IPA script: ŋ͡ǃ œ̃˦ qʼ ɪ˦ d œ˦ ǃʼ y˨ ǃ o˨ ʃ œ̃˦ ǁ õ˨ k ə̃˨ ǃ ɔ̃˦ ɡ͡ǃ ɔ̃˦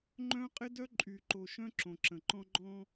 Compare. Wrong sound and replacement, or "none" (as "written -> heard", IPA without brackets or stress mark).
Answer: k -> ǁ